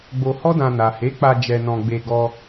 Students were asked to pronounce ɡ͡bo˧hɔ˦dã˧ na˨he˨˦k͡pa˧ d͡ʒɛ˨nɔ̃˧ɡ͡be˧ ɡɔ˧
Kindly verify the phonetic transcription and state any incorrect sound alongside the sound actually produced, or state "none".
ɛ˨ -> ɛ˧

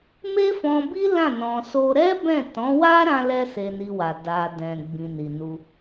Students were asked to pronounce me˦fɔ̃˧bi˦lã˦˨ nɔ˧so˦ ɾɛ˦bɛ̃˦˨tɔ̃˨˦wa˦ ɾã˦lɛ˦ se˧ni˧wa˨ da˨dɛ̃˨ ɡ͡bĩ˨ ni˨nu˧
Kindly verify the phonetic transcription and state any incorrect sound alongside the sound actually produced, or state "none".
ɔ˧ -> ɔ̃˧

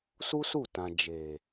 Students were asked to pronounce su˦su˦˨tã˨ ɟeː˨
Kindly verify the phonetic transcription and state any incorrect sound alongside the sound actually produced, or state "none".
ɟ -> d͡ʒ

